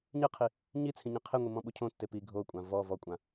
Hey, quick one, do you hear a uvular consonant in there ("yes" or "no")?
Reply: yes